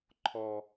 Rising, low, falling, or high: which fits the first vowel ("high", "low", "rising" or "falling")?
high